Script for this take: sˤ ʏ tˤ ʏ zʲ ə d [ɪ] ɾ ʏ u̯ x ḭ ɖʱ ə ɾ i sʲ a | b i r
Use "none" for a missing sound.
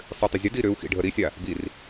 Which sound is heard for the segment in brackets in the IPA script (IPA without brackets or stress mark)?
i